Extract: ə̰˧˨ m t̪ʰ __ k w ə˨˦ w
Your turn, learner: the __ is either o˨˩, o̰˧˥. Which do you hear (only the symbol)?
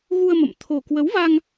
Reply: o˨˩